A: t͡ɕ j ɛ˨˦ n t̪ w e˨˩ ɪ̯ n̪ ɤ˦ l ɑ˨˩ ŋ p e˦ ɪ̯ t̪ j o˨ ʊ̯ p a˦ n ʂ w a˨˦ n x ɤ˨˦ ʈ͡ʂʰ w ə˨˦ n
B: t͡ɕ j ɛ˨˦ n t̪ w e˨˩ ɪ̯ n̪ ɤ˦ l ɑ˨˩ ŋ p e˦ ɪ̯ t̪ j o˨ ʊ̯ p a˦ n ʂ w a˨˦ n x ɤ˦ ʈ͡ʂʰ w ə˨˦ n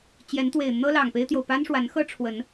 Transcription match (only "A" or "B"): B